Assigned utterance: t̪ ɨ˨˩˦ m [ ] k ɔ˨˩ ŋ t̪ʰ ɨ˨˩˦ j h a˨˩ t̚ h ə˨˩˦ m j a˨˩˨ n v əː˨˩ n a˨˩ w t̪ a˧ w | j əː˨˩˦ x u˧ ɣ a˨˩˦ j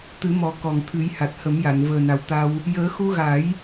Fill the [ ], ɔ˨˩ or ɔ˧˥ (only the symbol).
ɔ˨˩